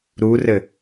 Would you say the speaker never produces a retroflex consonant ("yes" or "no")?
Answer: yes